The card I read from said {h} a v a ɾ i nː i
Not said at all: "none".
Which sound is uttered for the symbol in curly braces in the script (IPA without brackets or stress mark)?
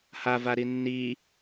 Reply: h